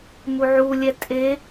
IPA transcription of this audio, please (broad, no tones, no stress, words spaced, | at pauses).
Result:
muʕulʲɛ tʼe